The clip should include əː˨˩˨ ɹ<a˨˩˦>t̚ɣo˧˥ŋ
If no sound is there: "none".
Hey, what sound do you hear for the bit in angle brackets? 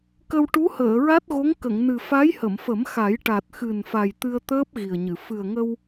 a˦˥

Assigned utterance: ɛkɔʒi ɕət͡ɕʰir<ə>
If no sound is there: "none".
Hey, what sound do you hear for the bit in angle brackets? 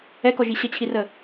ə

